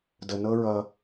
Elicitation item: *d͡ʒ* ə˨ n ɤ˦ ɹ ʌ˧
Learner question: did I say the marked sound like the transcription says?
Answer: no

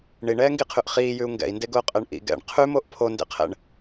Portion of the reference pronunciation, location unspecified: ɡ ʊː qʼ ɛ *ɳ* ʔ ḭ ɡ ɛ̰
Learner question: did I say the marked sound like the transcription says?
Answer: yes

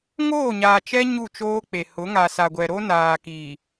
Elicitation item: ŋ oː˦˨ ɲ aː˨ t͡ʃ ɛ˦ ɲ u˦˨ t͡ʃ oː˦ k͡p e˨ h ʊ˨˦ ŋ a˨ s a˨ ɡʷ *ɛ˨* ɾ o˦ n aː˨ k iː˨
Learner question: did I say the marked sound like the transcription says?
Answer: yes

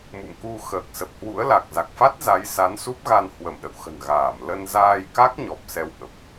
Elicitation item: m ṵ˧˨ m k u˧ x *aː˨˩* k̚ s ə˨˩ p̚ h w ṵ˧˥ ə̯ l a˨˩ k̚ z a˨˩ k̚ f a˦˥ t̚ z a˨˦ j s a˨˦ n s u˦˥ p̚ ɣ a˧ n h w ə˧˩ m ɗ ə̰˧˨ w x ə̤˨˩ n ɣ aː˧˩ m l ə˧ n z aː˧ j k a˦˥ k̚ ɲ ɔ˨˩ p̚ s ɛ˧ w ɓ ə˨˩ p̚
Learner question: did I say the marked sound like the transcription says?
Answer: no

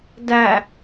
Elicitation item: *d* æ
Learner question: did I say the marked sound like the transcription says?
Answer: yes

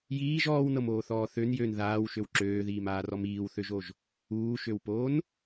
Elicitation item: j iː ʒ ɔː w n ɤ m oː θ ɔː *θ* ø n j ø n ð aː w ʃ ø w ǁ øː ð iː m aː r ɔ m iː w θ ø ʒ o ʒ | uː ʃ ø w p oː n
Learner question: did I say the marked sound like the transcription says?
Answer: yes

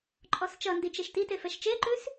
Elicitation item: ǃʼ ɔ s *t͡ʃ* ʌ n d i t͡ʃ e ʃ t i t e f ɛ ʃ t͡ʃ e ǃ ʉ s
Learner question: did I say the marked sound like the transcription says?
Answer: yes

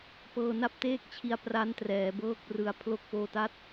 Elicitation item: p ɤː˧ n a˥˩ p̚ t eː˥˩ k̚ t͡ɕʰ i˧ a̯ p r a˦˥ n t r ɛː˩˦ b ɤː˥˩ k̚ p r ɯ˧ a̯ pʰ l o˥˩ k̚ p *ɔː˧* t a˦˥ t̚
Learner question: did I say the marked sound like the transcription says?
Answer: no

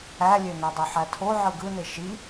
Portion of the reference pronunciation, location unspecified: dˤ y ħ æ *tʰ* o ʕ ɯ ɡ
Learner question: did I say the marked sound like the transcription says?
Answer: yes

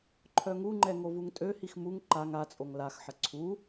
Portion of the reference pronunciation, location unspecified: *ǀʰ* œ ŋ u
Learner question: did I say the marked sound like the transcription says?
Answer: no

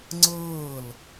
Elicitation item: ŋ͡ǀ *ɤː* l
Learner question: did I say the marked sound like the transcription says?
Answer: yes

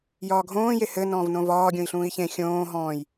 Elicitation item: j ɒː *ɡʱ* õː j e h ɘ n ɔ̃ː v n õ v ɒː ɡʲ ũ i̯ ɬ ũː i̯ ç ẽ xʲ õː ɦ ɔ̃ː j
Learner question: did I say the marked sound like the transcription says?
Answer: yes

